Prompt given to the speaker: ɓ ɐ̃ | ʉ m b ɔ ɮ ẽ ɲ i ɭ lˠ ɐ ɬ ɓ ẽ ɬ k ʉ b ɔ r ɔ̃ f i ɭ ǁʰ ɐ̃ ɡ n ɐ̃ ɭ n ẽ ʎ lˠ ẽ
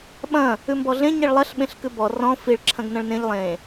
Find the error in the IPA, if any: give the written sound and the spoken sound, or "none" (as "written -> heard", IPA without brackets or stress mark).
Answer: none